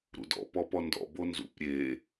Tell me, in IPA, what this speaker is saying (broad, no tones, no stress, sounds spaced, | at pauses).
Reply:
ɾ ṵ d ɔ̰ p ɔ p ɔ n d ɔ̰ b o n z ṵ p ɾʲ e